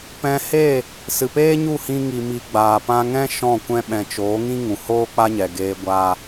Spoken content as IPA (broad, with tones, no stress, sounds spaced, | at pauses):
p ɛ̃˧ h eː˦˨ | s ɨ˨ p eː˦ ɲ u˦˨ h ĩ˧ ŋ i˨ m i˨ ɡ͡b aː˨ p ã˧ ŋ ɛ̃˦ ʃ ɔ̃˦˨ kʷ ɛ̃˦ ɓ ɛ̃˨ t͡ʃ oː˨˦ ŋ ĩ˦ ŋ ũ˨ h oː˦ k͡p a˦ ɲ ɛ˨ ɡ eː˧ ɡʷ aː˧